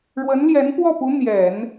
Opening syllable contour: rising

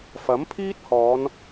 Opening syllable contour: rising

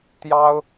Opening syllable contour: high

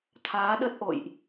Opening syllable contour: rising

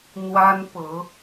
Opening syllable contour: high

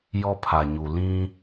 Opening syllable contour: high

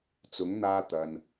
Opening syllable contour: rising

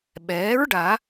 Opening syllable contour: rising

